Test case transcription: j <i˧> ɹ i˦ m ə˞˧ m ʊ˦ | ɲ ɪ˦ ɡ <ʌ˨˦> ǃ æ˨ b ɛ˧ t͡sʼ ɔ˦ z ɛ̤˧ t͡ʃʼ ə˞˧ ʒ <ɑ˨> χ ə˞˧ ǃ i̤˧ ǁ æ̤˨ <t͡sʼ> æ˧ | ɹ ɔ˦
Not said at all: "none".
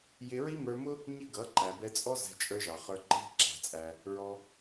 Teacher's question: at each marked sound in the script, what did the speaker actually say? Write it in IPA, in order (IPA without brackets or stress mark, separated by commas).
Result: ɪ˧, ʌ˨˦, ɑ˨, t͡sʼ